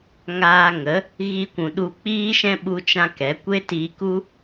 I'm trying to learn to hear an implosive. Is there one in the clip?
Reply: yes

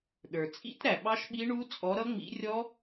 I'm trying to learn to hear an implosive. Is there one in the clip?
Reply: yes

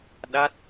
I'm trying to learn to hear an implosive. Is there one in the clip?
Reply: yes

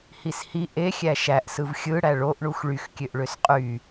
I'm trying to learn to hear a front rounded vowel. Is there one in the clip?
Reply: yes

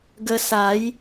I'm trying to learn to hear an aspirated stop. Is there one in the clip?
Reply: no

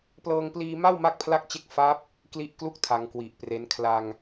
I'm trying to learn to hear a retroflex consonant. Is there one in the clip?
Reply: no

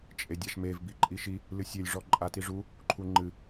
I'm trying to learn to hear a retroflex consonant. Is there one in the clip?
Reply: yes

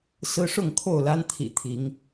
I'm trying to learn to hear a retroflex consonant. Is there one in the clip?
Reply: yes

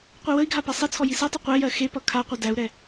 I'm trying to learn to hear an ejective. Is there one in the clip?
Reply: no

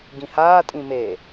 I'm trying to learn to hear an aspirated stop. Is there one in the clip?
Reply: no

